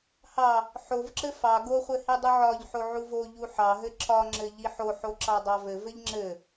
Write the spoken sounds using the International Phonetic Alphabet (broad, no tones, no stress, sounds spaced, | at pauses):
h ɑ | ħ o v ǁ ɘ f ɑ ɡ o χʷ ɘ h i dˤ u ʕ ɒ ʎ ħ o ʕ u v o ʎ u ħ ɑ ɦ ɘ ǁ ɒ ŋ͡ǁ ɘ ʎ i ħ o ħ o ǁ ɑ dˤ ɑ v ɘ v ɘ ʎ ŋ͡ǁ ɘ